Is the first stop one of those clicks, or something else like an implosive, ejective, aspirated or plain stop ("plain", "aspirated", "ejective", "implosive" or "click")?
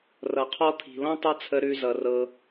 aspirated